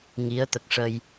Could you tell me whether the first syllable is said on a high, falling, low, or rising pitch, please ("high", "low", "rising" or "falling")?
rising